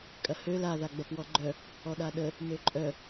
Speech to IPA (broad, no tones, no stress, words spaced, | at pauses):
kʼɐhø laða ɡ͡bɐpwɔɡ͡ǃœ | ɔɗaɗə | møǃʼœ